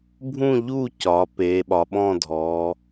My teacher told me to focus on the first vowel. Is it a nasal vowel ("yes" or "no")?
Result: yes